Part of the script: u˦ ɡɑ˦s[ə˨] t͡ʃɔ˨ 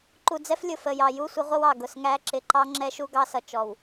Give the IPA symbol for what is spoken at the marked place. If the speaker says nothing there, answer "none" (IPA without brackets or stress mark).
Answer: ʌ˨